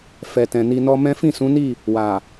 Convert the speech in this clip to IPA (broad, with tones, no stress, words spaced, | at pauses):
fɛ˨tɛ̃˨ ni˧nɔ˦ mɛ̃˦ fĩ˦˨sũ˨˦ni˦˨ | wa˨